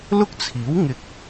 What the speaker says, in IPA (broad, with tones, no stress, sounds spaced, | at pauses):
l ʊ˥ k̚ t͡sʰ iː˨˥ w ŋ ɪ˧ k̚